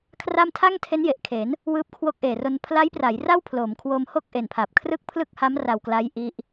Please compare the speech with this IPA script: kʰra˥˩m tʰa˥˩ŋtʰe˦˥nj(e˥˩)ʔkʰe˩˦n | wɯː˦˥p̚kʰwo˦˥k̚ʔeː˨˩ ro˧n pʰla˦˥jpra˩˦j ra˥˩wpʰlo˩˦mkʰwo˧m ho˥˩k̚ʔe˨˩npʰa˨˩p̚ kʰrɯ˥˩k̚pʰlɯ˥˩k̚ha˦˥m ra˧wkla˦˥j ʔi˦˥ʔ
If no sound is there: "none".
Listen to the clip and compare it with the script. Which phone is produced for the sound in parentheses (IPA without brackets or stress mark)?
e˨˩